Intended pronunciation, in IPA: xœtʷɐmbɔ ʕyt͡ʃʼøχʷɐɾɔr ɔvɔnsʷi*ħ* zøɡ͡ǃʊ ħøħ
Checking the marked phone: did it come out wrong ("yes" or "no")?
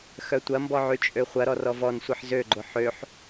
no